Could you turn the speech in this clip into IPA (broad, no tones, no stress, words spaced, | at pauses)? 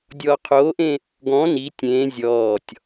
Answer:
dʲɔːqʰoːʔẽ | ɡɔ̃ ni tʲẽː zʲɔːtʲ